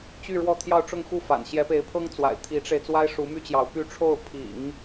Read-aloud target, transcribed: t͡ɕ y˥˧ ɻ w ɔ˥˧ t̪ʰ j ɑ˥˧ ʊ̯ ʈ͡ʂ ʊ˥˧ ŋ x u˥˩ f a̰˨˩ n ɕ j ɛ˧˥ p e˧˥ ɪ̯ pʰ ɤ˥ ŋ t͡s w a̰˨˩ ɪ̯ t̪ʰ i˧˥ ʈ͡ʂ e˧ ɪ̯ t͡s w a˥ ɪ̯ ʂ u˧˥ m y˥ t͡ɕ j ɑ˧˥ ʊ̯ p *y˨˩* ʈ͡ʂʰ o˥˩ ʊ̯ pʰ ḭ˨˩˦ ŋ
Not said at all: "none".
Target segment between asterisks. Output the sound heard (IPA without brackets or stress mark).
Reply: y˥˧